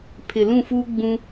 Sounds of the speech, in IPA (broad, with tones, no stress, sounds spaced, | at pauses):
pʰ ɪ˨ l ũ˦˨ f uː˦ ɡ͡b ũ˦